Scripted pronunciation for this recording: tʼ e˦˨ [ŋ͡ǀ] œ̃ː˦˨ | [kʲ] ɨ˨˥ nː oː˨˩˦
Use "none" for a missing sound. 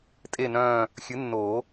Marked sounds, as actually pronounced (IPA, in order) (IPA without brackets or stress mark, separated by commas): n, xʲ